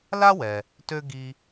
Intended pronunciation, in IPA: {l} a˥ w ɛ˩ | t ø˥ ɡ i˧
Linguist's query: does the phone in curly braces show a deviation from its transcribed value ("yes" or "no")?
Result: no